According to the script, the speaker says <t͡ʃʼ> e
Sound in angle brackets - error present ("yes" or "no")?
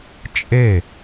no